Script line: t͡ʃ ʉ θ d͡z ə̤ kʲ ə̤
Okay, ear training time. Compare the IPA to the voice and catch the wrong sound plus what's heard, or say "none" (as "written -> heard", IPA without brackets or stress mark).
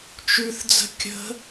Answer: none